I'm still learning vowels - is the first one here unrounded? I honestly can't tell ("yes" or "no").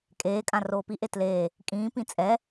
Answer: yes